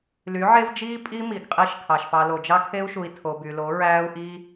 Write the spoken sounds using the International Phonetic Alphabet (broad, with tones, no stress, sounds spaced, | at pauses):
l y˨˦ ʕ e˦ v d͡ʒ iː˦ pʼ i˦ m i˨ ɡ qʼ i˧ ʃ kʰ ɑ˨ ʃ p ɑ˧ l o˨ d͡ʒ ɑ˦ kʰ e˦ u̯ ʃ u˨ i̯ tʰ o˨ b y˨ l o˨˦ ɹ æː˦ u̯ ʔ i˦